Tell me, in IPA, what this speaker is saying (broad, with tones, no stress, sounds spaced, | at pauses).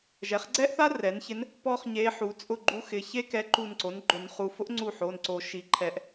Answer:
ʒ ɛ˩˥ χ ɡ͡ǀ ɛ˥ ʔ θ a˥ r ɛ˩˥ n ç ɪ˧˥ n | p ɔ˥ χ ɲ e˧˥ ħ u˩˥ t͡sʼ ʊ˦˨ ɡ͡ǃ u˧˥ x ɪ˩˧˩ ç e˥ k ɛ˧˥ ǃ u˦˨ n ǀ o˩˥ n ɡ͡ǃ ʊ˨˩˦ n χ u˩˧˩ f ʊ˥ ʔ ŋ͡ǀ u˦˨ ħ o˩˧˩ n ǀ o˨˩˦ ʃ i˩˥ ǃʰ ɛ˨˩˦ ʔ